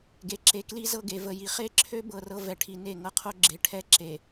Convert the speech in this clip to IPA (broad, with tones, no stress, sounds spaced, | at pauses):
ɡ e˨ ǁ e˨ k l i˦ z ɤ˦ ɡ e˨ v ə˨ j i˨ χ e˦ ǁʰ ø˦ b ɤ˦ r ɤ˦ v ɛ˨ ʈʰ i˨ n e˦˨ ŋ ɤ˦ qʰ o˦ ɡ͡ǁ e˨ ʈʰ ɛ˦ ǁ e˨